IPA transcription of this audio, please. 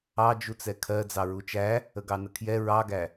ɑ d͡ʒ u t͡s ɛ kʰ ɜ d͡z ɑ ɹ u t͡ʃ æ | ə ɡ ɑ n ə kʰ j ɛ ɹ ɑ ɡ æ

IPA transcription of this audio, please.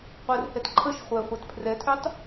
qʷ ɛ r h ɛ t ǃʰ ə ʃ χʷ ɛ χʷ ɛ t pʰ r ɛ tʰ ø tˤ

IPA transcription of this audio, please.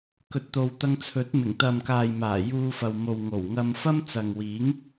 k ɵ˨ t̚ t̪ o˨ w t̪ ɐ˧ ŋ t͡sʰ ɵ˨˥ t̚ m ɪ˨˩ ŋ t̪ ɐ˨ m k aː˨ j m aː˨˩ j uː˧ f ɐ˨ w m o˨ w ŋ o˨˩ w ŋ ɐ˧ m f ɐ˥ m t͡s ɐ˨ ŋ w iː˨˥ ŋ

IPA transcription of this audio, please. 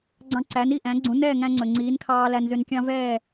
ɡ͡ǀ ɑ̃˧ ǀ æ˩˥ n i˥˩ ʔ æ̃˩˥ ɡ͡ǀ ũ˩˥ n ɛː˥˩ ŋ æ̃˧ ŋ͡ǀ ɵ˩ ŋ͡ǀ iː˩˥ n kʰ ɑː˧ l æ˧ n z ø˧ n kʲ ɑ̃˥ v ɛ˥˩

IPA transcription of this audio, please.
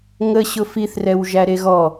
ŋ ə ɕ ʊ f i θ r ɛ w ʒ æ ɾ e ɣ ɔ

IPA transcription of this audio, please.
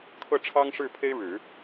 kʰ ɤ˥˩ ʈ͡ʂʰ ɑ˥ ŋ ʂ ɻ̩˥˩ pʰ e˥ ɪ̯ ɻ ɻ̩˨˩˦

